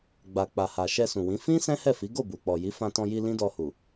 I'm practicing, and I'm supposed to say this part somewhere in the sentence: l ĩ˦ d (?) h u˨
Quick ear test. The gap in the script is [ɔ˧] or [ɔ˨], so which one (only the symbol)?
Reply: ɔ˧